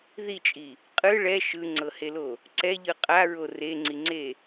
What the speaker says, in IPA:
ð i t͡ʃʼ i | qʼ ɯ ɭ ɛ ʃ ɯ ŋ͡ǀ ɤ h e l o | ǀ ɛ ʎ ɯ qʼ a ɹ o r e ŋ͡ǀ i ŋ͡ǀ e

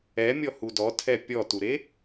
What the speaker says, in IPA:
ɛ mʲ ɔ h u d ɔ tʰ ɛ pʲ ɔ t u ɾ e

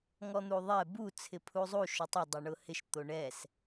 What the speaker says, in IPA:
ŋ ɔ n̪ u ðˤ ɛ b u t͡sʰ ɪ pʰ u zˤ u ʃ ʊ tˤ ɪ dˤ e ɳ ʊ h ɪ ʃ t̪ o ɳ ɛ s

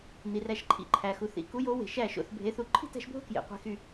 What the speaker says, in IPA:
n̪ i˩ r æ˧˩ ʃ ǃʰ ḭ˧˩ ǃʰ æ˩ x u˩ θ ḭ˨˦ k u˨˦ j o˨˦ w e̤˩ ʃ æ˧˩ ʃ o̰˧˩ θ bʱ e˨˦ θ u˧˩ ǃʰ i̤˥˧ t æ̤˨˦ ʃ bʱ o̤˥˧ k j ḛ˩ qʷ e̤˧˩ x y˧˩

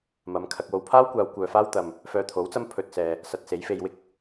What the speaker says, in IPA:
m ɐ˨˧ m kʰ ɐ˨ k̚ w o˨ w pʰ aː˥ w kʷ aː˨˧ w kʷ œː˨ f aː˥ w t̪ ɐ˨ m | f œː˧ t̪ʰ o˨˥ w t͡s ɐ˥ m pʰ ɵ˨ t̚ s ɛː˨ | s ɐ˨ t̚ s e˨˥ j f e˧ j w ɪ˥ k̚

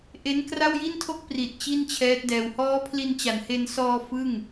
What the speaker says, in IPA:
ʔ e˦˥ n k r a˥˩ w j i˥˩ n tʰ o˥˩ k̚ p r i˨˩ t̚ t͡ɕ i˥˩ n t͡ɕʰ ɛː˦˥ t̚ d ɛː˧ w h ɔː˦˥ pʰ l i˧ n t͡ɕ a˨˩ n h e˧ n s ɔː˧ f ɯ˥˩ ŋ

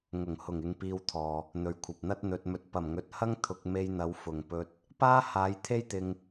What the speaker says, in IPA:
ŋ ʊ˨˩ ŋ h ʊ˨˩ ŋ ɪ˨ ŋ p iː˧ w t̪ʰ ɔː˨ | n̪ ɵ˨ ɥ kʷʰ ɐ˨ p̚ n̪ ɐ˥ t̚ n̪ ɵ˨ t̚ m ɵ˨ t̚ p ɐ˨˩ m ŋ ɵ˨ t̚ h ɐ˥ ŋ t̪ʰ ʊ˧ k̚ m e˧ j n̪ ɐ˨˧ w f ʊ˨ ŋ p ɵ˧ t̚ | p aː˥ h aː˨˧ j t̪ʰ e˥ j t̪ ɪ˧ ŋ

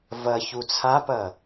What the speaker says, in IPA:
v ɐ ç u t͡sʰ a p ɐ

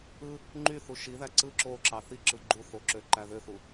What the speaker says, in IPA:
ɯ | ŋ͡ǃ y θ u ʃ i ð æ ǀ ɯ ǁ o ǁ ɑ θ i ǁ ɯ ɡ͡ǃ u θ o ǁ ø ǃ æ ð ø θ u

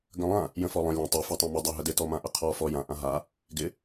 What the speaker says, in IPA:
ɡ ə̃ lˠ ã | j ə̃ f ɔ lˠ ə̃ lʲ ə̃ tˤ ɪ f a tˤ ã m ɪ dˤ a ɦ ə d ɪ t ɔ m ã ʔ ə qʰ ɔ f ɔ j ã ʔ ã ɦ a | ɡ ɪ

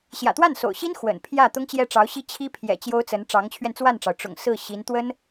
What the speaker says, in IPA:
ɕ j ä̰˨˩ t̪ w a˥˩ n s o̰˨˩ ʊ̯ ɕ i˥ n x w ə̰˨˩ n pʰ j ä˥˩ t̪ ʊ˥ ŋ t͡ɕ j ɛ˥˩ ʈ͡ʂ ɑ˧˥ ʊ̯ ɕ i˥ t͡ɕʰ i˥ pʰ j ɛ̰˨˩ t͡ɕ j o˥ ʊ̯ t͡s ə˧˥ n ʈ͡ʂ ɑ˧˥ ŋ t͡ɕʰ ɥ ɛ˧ n t͡s w a˥˩ n ʈ͡ʂ ɑ˩ ʊ̯ ʈ͡ʂ ʊ̰˨˩ ŋ s ɹ̩˥˩ ɕ i˧˥ n t̪ w ə˥ n

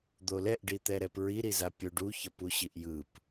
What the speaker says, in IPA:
d̪ o l ɛ ʔ ɖ i t̪ ɛ ɾ ɛ p ɹ i ɾ i z a pʲ o ɖ u ç ʌ p u ɕ i ʔ j ɯ p

